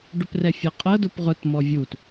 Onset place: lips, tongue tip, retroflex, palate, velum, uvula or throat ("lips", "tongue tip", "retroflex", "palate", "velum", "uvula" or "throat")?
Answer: retroflex